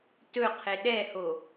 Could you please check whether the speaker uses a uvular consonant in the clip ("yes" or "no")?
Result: yes